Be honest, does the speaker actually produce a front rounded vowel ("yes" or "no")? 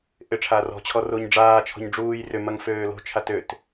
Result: yes